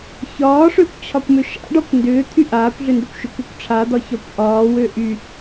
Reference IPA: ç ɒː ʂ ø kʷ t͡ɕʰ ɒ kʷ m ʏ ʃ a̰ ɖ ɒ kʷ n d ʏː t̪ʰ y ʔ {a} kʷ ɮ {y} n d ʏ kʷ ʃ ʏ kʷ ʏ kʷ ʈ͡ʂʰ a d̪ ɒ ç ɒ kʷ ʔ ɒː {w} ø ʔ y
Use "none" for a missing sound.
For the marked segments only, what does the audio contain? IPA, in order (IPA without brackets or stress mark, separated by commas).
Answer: aː, ʏ, w